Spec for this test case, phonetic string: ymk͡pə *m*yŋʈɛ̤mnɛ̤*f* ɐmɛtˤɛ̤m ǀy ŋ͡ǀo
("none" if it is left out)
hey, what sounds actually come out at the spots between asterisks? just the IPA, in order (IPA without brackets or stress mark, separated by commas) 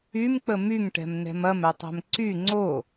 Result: m, m